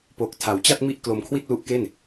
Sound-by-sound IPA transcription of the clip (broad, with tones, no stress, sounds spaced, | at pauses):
p o˨˩ k̚ tʰ a˩˦ w t͡ɕ a˥˩ t̚ m i˥˩ ʔ k l o˧ m kʰ w i˥˩ t̚ l u˦˥ ʔ k e˥˩ n